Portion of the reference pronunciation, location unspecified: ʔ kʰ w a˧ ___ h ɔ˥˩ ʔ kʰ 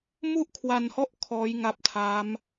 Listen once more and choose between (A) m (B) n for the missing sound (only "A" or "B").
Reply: B